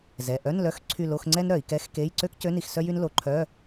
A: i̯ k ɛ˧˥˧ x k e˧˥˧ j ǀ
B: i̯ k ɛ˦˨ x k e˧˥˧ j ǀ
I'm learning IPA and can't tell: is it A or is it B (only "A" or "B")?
A